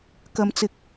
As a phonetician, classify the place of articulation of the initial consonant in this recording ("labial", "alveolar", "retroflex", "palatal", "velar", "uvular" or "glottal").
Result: velar